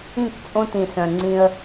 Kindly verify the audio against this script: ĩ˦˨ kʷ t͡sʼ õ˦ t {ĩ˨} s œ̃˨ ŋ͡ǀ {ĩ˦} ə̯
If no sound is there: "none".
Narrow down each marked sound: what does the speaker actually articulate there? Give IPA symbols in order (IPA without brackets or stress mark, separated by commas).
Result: ĩ˨, ĩ˦